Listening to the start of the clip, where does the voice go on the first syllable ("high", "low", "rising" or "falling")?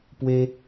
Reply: high